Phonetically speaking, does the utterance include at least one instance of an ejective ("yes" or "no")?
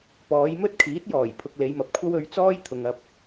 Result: no